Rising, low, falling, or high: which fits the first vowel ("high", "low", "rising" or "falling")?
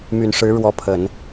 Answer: low